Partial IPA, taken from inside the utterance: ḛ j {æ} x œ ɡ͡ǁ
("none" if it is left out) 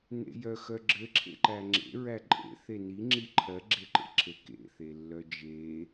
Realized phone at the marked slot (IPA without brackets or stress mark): œ